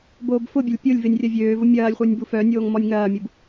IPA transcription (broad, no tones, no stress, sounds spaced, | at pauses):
b oː b f ʊ bʲ ɐ lʲ pʲ ʊ lʲ v ɪ nʲ rʲ ɐ vʲ øː v ʊ mʲ ɐː lʲ χʷ œ nʲ b u f œ nʲ oː ŋ m ɔ nʲ ŋ ɐː mʲ u b